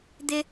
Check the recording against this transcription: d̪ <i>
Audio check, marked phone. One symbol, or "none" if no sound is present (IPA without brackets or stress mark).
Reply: ɪ